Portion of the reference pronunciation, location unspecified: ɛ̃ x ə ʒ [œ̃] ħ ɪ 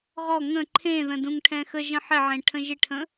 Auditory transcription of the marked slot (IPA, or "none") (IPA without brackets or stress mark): ə̃